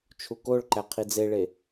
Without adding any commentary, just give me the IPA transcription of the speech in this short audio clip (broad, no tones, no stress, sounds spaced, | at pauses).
t͡ʃʰ u k o ɭ ǃ æ qʰ i d͡z e ɭ e